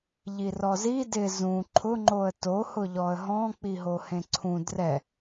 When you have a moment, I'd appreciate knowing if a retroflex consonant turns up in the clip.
no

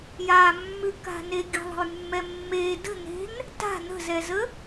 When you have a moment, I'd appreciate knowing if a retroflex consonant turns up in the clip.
no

